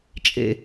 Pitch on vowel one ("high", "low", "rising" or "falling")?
low